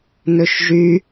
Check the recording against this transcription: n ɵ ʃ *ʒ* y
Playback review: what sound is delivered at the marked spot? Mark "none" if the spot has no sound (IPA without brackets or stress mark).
ʒ